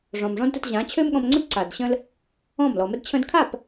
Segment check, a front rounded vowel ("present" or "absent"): present